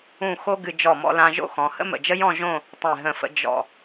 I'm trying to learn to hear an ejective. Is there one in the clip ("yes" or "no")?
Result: no